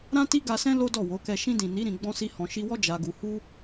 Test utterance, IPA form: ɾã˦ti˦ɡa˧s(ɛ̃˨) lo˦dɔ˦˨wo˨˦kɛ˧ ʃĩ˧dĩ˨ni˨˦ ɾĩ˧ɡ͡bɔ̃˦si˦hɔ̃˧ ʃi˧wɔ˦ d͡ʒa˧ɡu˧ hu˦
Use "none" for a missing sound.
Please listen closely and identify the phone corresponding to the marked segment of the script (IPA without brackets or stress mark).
ɛ̃˦